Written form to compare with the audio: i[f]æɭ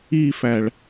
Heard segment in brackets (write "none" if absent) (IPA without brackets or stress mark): f